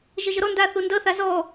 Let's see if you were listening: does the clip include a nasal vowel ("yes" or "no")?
no